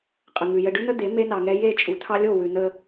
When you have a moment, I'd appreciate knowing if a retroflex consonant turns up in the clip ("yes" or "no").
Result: yes